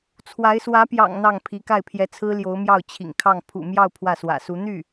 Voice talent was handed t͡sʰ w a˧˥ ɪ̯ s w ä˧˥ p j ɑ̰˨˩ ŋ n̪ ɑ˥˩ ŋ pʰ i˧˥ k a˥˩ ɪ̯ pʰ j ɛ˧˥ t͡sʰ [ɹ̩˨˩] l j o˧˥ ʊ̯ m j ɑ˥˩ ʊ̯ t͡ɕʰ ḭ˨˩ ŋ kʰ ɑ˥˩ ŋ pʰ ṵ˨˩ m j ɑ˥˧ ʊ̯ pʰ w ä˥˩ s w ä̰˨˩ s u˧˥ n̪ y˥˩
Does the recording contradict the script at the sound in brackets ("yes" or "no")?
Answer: yes